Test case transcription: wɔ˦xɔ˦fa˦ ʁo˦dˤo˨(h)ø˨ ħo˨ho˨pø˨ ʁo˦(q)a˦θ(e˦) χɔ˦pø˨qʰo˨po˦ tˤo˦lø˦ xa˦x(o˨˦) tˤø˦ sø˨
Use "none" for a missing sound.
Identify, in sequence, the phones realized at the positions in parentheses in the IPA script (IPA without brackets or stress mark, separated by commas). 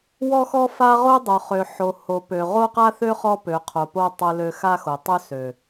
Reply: χ, q, ø˦, o˨